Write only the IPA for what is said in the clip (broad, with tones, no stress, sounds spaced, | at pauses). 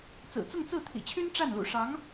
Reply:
t͡s ɹ̩˨˩ t͡s ʊ˥˧ ŋ t͡s ɹ̩˥˩ t̪ʰ ḭ˨˩ t͡ɕʰ y˥ n ʈ͡ʂ a˥˩ n l ṵ˨˩ ʂ ɑ˧˥ ŋ